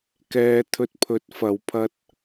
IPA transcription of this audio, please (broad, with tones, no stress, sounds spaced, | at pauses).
k ɛː˨˧ t̪ʰ ɵ˧ t̚ pʰ ɵ˨˥ t̚ f ɐ˨˧ w pʰ ɐ˥ t̚